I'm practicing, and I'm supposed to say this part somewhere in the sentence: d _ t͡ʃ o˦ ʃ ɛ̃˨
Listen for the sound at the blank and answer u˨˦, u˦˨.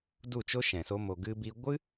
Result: u˦˨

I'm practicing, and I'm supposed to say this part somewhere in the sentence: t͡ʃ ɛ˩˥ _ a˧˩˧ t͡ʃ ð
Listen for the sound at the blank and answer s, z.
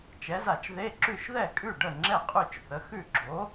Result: z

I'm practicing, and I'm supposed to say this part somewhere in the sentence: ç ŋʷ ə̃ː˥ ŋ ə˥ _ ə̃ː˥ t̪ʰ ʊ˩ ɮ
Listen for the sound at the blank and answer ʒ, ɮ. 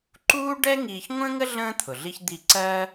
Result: ɮ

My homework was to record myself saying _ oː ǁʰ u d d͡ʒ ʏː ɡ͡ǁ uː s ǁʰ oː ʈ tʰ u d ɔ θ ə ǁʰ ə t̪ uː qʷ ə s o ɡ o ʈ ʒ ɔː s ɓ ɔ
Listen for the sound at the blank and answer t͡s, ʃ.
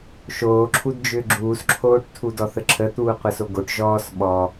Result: ʃ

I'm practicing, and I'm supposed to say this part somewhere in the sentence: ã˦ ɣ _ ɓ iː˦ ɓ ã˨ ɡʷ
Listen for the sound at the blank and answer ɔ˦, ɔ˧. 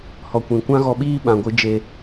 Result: ɔ˧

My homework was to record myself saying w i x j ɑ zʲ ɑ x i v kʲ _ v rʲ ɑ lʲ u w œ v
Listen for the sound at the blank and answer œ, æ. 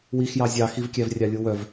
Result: æ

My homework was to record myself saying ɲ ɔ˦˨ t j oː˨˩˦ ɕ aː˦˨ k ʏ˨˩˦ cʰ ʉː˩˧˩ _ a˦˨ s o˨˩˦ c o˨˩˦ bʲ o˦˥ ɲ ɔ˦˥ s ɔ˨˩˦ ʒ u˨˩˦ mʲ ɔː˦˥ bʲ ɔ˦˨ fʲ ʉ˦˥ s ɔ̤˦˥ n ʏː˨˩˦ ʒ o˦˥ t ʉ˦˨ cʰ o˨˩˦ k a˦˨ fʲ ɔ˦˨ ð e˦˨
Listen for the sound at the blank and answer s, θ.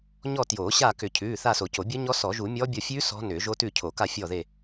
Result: θ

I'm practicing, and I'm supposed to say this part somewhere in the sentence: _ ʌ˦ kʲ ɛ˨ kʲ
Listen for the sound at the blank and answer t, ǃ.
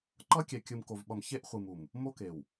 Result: ǃ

